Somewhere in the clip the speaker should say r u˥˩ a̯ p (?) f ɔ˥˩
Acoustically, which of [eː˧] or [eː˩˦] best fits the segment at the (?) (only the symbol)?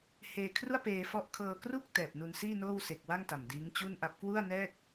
eː˧